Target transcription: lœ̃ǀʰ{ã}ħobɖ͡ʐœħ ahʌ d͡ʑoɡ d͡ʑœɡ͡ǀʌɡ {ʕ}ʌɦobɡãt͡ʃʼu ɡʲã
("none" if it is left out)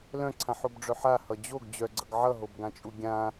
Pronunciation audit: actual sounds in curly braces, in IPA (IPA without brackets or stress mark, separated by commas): ã, ʕ